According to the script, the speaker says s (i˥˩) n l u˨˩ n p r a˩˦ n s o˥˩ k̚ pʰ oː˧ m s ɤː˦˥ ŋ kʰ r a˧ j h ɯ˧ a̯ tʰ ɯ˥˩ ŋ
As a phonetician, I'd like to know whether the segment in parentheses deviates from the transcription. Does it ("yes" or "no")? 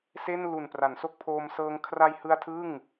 yes